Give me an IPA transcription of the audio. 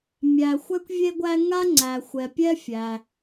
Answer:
mʲ æ˩ xʷ ɛ˥ kʷ vʲ e˥ ɡʷ æ˥ ŋ a˥ ŋ͡ǀ æ˩ xʷ ɛ˩ pʲ ɛ˥ fʲ æ˩

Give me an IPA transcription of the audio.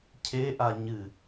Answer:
cʰ e ʔ a ɲ ɨ

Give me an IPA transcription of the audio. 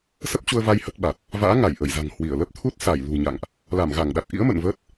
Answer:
s ə˦˥ p̚ t͡ɕ u˧ ə̯ v a˧ j h ə˦˥ t̚ ɓ a˨˩ t̚ | v a̰ː˧˥ ŋ a˧˩ j ʔ ə˧˩ j z a̤˨˩ ŋ h w i˧˩ ə̯ l ə˦˥ p̚ t̪ʰ u˦˥ t̚ s a˧˩ j l ṳ˨˩ ɲ a̰˧˨ ŋ ʔ | l a˧˩ m ɣ a˧˩ ŋ ɗ a˨˩ t̚ ʔ ḭ˧˥ ə̯ m ə̰˧˨ n v əː˦˥ t̚

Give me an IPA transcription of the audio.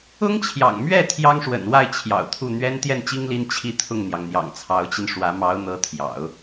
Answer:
ʊ˥ ŋ t͡ɕʰ j ɑ̰˨˩ ŋ m ɥ ɛ˥˩ t̪ʰ j ɑ˥ ŋ ʂ w ə̰˨˩ n w a˥˩ ɪ̯ t͡ɕʰ j ɑ̰˨˩ ʊ̯ t̪ʰ u˥˩ n̪ ɥ ɛ˥ n t̪ j ɛ˥˩ n t͡ɕ i˥ ŋ l i˥ n t͡ɕʰ i˥˧ t̪ʰ ʊ˥˩ ŋ n̪ j ɑ˩ ŋ n̪ j ɑ̰˨˩ ŋ t͡sʰ ɑ˧˥ ʊ̯ t͡ɕ i˧ n ʂ w ä˧˥ m ɑ˧˥ ʊ̯ n̪ ɤ˧˥ t̪ʰ j ɑ̰˨˩˦ ʊ̯

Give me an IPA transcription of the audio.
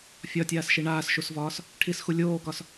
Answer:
fʲ ɒ tʲ aː s ʃ i ɳ aː s ʃ u s v ɒː s | ʈʰ i s x u lʲ oː k ɒ s

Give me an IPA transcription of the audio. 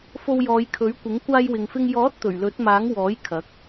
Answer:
f o˧ w j ɔː˨˧ j kʰ ɵ˨˥ ɥ kʷ ɪ˨˥ ŋ kʷ aː˧ j w ɪ˨ ŋ f ɪ˧ ŋ j ɔː˨˥ t̚ t̪ ɵ˨˩ ɥ l ɵ˨˥ t̚ m aː˨˥ ŋ w ɔː˨˥ j kʰ ɐ˨˥ k̚

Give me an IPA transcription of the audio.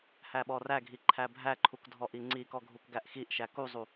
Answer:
h æ ɓ ɔ r æ ɡʱ i ǃʰ æ bʱ æ ǃʰ u k dʱ ɔ ʔ i ŋ͡ǀ i k ɔ ɡʱ u k ɡ æ ʔ x i ʔ ʃ æ k u zˤ u

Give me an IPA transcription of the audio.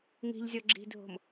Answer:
ŋ i̤ ʎ zʲ ɔ ɡ͡ǁ i̤ dʱ o̤ m

